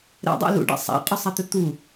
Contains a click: no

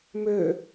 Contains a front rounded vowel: yes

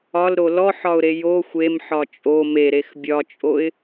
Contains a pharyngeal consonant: yes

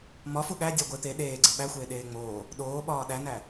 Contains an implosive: yes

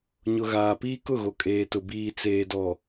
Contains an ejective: yes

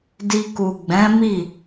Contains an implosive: no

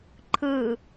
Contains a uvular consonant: no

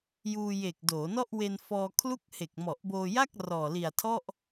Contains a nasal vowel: no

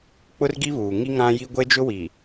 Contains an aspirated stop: no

